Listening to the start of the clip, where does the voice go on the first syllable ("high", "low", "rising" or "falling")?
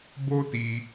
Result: high